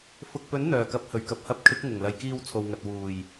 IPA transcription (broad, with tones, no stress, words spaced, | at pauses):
fʊ˨k̚pɵ˨˥n n̪œː˨˩kɐ˨˥p̚hɵ˨˩ɥ kɐ˨p̚hɐ˨˥p̚ kʰɪ˨˥k̚ŋʊ˨˩ŋlɐ˨jkiː˧w t͡sʰo˨wŋɐ˨t̚ wuː˨˩j